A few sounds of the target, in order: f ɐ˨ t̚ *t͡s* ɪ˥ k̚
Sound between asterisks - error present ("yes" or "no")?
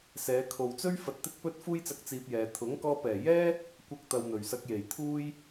yes